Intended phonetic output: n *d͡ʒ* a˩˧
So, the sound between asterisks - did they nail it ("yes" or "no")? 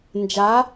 yes